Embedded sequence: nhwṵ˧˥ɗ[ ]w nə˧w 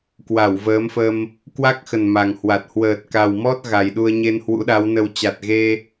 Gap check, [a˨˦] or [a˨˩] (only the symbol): a˨˦